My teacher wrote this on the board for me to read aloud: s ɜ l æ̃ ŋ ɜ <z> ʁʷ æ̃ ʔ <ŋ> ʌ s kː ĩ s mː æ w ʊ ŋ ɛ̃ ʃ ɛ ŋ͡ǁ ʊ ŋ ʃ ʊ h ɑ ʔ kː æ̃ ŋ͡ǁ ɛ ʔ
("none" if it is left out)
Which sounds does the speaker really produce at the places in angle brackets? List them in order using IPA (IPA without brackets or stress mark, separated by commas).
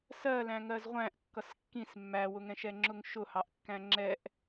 z, kː